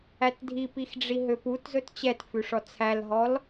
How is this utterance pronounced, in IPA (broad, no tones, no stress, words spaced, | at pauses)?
ætdʱipixɖ͡ʐi ɦøputzɵt t͡ɕɛtfʉʂɔ t͡sʰælɦɔl